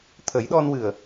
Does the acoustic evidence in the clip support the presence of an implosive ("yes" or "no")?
yes